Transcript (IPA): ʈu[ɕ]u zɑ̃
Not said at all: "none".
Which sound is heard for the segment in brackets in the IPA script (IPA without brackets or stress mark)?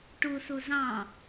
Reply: s